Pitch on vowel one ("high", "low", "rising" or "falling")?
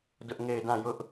high